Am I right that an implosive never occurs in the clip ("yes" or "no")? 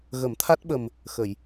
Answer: no